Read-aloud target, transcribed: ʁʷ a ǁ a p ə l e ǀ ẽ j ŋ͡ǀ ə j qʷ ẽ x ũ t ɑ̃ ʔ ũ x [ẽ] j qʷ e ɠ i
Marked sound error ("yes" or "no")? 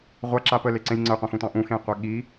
no